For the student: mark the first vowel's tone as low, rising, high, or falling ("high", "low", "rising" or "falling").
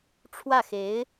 falling